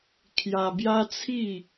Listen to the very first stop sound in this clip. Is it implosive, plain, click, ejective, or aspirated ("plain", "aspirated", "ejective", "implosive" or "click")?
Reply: aspirated